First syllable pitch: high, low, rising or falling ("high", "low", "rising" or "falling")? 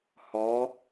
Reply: rising